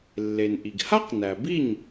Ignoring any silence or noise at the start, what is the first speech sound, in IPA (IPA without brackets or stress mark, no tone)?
lː